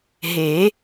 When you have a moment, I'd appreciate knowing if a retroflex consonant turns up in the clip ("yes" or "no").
no